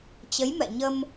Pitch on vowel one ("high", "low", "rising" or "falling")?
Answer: rising